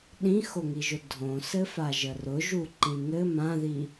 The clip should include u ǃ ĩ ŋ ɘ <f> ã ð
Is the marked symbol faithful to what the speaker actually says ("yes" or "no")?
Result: no